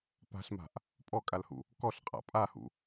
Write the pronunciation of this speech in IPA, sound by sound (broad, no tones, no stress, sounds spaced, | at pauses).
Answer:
p a̤ ɬ m a̤ ʔ | pʼ ɔ kʼ a l h ṵ | k ɔ ɬ qʼ a̰ pʼ a h ṵ